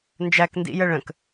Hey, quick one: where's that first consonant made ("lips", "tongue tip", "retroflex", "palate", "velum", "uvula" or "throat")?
tongue tip